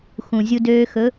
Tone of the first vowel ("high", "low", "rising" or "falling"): low